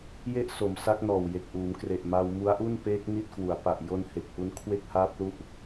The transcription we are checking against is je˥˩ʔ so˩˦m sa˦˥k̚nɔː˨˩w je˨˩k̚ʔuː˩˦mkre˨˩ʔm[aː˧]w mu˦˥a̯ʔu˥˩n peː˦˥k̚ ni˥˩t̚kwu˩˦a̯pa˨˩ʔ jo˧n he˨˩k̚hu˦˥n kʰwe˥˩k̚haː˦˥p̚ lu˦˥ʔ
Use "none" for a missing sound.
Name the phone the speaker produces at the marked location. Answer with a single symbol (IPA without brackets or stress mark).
a˧